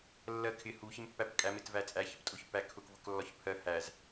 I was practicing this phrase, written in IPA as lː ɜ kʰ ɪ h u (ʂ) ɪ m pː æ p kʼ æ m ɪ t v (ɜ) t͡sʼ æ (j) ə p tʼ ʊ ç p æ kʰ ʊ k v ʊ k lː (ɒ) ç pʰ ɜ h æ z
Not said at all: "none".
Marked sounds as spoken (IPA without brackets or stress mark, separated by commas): ç, æ, ç, ɒ